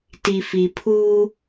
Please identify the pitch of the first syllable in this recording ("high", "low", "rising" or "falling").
low